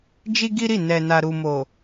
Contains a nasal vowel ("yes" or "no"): no